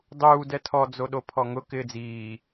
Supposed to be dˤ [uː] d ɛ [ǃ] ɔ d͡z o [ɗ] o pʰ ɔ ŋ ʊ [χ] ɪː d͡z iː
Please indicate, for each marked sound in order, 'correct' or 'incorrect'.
correct, incorrect: tʰ, correct, incorrect: k

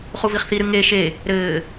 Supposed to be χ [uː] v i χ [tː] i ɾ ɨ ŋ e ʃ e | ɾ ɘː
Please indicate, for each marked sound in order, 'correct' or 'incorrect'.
incorrect: u, incorrect: θ

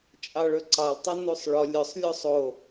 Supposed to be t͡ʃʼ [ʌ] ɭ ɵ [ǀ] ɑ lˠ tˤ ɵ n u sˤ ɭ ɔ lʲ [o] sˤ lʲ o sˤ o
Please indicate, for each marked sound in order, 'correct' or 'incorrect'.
incorrect: ɑ, correct, incorrect: ɵ

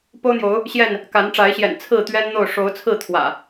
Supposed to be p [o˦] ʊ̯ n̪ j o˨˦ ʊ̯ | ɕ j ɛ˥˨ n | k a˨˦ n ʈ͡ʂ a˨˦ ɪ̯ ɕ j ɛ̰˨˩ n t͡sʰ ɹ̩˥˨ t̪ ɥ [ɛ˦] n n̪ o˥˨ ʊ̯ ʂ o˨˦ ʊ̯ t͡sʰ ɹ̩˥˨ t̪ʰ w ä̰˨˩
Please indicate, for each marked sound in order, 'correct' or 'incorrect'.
correct, correct

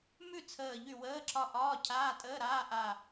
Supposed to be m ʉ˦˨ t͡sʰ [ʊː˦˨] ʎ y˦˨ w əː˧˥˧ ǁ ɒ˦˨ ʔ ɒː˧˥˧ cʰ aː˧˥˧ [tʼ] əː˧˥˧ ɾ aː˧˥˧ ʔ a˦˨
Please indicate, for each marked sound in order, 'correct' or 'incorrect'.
incorrect: əː˦˨, correct

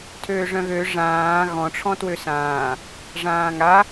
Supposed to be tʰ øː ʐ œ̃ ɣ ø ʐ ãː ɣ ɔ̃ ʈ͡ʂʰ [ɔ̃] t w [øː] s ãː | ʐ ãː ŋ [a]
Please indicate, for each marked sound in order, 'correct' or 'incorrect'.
correct, incorrect: ø, correct

